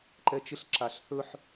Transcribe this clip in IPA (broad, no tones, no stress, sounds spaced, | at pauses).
ǃ ɛ t͡ʃ ɪ ɬ ǁ a ɬ θ ɵ ħ